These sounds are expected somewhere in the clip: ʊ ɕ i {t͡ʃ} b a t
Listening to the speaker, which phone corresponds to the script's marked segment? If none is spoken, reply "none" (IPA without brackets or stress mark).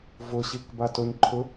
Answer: k